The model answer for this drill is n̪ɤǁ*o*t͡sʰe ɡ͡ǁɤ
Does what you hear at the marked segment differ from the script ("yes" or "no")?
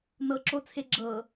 no